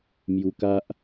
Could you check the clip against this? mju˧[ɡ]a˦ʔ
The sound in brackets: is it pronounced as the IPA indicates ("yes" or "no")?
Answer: no